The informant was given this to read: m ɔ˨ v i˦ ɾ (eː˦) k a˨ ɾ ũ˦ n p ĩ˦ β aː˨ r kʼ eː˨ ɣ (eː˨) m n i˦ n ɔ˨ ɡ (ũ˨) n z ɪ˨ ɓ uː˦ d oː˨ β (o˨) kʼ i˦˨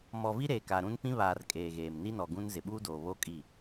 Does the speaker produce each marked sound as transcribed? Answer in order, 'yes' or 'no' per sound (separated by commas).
no, yes, no, no